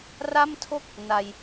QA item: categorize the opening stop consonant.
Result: aspirated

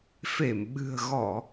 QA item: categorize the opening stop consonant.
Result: implosive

